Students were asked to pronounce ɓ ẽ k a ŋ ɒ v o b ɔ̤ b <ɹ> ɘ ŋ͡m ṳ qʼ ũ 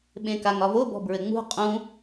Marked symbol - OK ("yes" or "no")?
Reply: yes